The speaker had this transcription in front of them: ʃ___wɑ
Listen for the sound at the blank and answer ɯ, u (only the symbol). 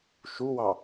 u